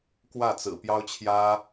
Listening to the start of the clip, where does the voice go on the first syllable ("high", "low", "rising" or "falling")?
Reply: falling